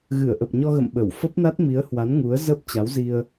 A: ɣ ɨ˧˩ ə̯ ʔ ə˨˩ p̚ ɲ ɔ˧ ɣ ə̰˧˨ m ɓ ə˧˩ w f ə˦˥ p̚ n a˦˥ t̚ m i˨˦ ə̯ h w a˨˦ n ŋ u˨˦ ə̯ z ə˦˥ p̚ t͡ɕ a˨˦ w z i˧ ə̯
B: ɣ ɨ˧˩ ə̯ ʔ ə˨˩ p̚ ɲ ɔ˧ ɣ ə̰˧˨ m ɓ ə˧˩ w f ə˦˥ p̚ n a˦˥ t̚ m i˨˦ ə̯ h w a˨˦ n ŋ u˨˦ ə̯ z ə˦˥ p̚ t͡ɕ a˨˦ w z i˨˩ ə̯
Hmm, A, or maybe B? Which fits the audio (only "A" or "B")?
A